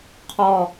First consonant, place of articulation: uvular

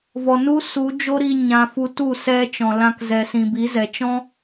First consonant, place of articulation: labial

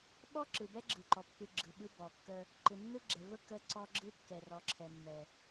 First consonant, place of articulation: labial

